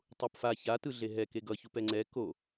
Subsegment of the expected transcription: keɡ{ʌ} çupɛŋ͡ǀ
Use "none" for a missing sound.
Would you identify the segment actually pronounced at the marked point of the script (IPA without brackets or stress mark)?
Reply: ʌ